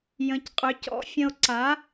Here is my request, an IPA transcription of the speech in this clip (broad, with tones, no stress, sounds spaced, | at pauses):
j ə̃˨˥ c qʼ ʏ˨˥ c ɔ̰˨˥ fʲ ə̃˧ o̯ ǀ a˨˥